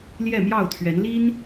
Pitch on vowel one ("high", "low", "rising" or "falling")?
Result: falling